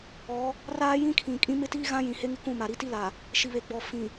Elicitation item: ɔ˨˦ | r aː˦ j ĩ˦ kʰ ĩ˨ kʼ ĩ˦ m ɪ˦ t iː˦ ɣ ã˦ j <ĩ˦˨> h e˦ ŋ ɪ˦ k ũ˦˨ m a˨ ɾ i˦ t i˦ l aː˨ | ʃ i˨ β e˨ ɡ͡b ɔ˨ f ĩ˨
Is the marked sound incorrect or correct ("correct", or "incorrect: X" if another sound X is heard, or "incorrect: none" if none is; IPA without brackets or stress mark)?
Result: incorrect: ĩ˨